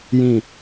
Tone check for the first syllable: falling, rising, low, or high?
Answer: low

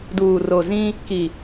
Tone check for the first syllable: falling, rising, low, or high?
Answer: low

